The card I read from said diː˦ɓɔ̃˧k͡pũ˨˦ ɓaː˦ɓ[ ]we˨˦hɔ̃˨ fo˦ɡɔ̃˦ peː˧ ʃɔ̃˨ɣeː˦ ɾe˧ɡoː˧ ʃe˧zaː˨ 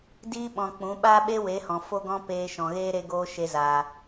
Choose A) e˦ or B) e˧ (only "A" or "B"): A